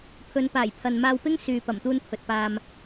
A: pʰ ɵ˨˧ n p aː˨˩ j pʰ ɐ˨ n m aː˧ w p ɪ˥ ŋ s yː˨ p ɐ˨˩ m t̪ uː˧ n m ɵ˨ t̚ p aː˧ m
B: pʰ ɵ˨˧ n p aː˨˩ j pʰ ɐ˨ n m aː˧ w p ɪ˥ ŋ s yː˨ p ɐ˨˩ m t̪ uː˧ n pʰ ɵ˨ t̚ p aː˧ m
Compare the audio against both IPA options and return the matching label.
B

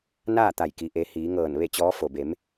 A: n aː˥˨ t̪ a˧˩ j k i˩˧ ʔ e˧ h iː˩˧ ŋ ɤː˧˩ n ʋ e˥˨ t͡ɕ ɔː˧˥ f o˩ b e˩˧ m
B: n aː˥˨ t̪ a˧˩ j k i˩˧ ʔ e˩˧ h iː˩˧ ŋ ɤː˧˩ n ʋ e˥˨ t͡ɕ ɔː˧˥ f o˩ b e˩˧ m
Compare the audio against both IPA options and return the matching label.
B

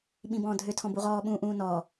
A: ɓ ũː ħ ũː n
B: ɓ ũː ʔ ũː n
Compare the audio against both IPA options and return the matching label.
B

